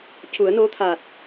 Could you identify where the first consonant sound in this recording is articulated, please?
palatal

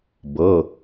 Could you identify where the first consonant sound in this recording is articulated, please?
labial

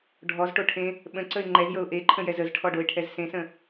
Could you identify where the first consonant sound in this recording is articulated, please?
retroflex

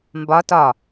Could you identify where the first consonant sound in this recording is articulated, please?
labial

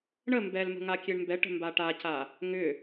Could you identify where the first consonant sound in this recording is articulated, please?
retroflex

